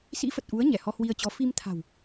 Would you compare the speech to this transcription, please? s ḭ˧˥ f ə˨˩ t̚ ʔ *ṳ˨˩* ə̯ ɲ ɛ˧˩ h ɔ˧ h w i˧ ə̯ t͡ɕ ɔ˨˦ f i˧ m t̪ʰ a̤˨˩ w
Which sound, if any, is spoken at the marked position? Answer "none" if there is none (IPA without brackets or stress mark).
u˨˦